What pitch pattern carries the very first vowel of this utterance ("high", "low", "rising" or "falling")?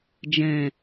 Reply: low